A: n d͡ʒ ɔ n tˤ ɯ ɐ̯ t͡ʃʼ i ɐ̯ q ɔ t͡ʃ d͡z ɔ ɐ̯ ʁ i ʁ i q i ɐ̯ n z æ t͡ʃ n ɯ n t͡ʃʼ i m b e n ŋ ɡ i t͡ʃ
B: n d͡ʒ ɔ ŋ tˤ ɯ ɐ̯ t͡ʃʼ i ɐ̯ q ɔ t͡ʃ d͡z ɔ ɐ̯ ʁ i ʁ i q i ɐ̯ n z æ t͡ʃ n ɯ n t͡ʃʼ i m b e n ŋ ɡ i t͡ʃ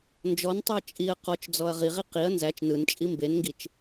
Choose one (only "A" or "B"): A